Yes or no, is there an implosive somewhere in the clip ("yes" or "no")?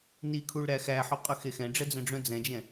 no